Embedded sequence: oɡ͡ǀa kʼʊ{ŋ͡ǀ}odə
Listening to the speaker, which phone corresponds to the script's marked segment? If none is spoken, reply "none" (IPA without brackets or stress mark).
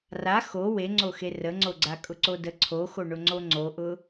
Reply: ǀ